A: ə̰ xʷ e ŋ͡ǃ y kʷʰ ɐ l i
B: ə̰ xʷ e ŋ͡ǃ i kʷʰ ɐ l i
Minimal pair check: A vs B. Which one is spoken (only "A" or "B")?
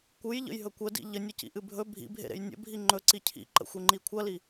B